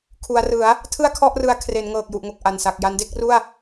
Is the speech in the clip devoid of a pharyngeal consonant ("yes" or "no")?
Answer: yes